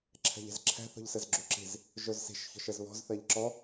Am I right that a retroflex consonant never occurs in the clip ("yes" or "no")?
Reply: yes